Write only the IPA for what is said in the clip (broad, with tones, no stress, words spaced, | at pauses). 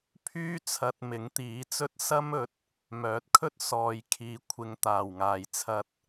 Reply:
pʰyː˥t͡sʰɐ˧t̚ mɪ˨˥ŋt̪iː˨˥t͡sɵ˥t̚ sɐ˥mɵ˨˥t̚ | mœː˨˥t̚kʰɵ˥t̚ sɔː˨jkʰiː˨kʷʰɪ˨ŋt̪aː˨˩w ŋaː˨jt͡sʰɐ˧t̚